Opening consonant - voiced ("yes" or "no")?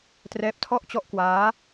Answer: no